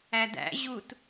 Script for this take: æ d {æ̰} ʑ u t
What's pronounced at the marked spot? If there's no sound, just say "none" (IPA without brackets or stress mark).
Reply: æ̰